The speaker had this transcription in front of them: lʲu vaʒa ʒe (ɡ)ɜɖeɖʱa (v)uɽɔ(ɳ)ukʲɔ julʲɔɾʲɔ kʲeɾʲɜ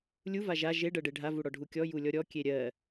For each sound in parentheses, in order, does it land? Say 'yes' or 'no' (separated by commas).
no, yes, no